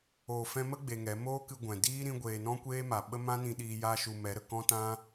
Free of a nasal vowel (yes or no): no